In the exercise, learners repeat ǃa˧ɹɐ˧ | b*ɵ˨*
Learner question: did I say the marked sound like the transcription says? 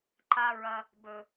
yes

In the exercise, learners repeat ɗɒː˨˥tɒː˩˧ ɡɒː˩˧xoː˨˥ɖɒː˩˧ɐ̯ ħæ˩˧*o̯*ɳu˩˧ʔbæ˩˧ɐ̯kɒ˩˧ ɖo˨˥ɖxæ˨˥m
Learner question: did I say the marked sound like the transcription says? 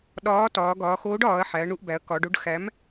no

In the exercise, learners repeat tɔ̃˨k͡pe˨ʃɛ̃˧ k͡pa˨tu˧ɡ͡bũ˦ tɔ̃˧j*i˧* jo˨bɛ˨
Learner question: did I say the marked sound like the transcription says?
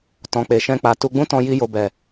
yes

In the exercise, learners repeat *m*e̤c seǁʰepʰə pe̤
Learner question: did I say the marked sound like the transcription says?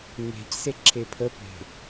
yes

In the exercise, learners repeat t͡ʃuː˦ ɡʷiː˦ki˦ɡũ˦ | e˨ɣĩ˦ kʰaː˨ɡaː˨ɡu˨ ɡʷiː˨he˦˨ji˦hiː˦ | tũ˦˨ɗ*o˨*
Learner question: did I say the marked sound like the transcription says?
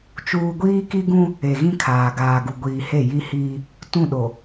yes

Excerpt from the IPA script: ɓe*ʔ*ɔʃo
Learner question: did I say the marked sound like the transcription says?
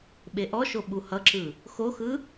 yes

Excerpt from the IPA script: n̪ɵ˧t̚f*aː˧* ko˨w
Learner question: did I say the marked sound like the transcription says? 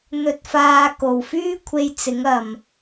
yes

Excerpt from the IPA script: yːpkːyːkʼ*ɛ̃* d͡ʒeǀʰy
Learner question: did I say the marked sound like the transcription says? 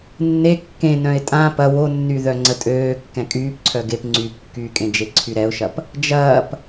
no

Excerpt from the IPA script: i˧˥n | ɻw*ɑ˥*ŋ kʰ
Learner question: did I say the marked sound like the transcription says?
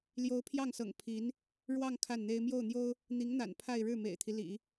no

